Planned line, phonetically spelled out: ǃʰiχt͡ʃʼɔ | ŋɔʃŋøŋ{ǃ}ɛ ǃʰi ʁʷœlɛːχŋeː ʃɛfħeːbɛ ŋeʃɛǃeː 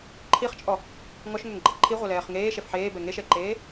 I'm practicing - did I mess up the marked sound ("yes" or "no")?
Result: yes